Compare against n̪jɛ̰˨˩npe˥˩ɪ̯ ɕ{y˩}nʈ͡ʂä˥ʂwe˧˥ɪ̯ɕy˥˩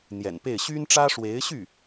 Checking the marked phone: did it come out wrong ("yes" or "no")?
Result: yes